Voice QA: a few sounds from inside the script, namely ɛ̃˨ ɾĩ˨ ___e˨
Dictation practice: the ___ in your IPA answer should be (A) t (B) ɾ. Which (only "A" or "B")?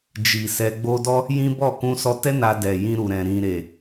B